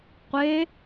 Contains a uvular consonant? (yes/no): yes